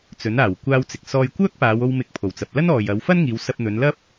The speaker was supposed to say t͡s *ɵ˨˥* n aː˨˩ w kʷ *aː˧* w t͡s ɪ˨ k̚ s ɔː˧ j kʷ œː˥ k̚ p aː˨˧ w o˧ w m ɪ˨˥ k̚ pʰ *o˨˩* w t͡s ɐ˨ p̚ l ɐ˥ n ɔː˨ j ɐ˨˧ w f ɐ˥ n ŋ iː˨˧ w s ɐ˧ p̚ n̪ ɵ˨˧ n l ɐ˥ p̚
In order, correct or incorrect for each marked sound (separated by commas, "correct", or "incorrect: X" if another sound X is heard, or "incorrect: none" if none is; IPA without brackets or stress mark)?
correct, correct, correct